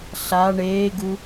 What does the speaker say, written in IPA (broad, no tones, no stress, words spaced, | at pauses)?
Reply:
ɬa ɳeːɡu